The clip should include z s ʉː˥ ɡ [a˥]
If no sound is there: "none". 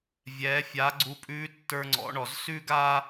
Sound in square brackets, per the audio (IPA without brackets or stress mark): aː˥